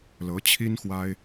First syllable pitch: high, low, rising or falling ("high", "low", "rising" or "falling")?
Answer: rising